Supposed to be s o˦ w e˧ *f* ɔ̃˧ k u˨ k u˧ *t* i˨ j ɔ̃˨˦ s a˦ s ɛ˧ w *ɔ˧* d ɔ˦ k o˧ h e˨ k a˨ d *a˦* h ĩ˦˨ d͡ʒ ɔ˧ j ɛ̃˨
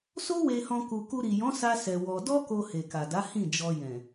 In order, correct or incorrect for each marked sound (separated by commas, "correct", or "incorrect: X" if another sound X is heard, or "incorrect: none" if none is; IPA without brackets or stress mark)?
incorrect: h, incorrect: ɾ, correct, incorrect: a˨˦